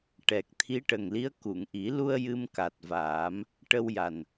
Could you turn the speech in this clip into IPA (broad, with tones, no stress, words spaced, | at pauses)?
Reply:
ʈɛ˨˩k̚ t̪ʰi˧˥ʈə˨˩ŋli˧˥ə̯ ku˨˩˨ŋʔi˨˩˦lu˧ə̯ jɨ˧mka˨˩t̚vaː˨˩˦m | ʈə˧wja˨˩n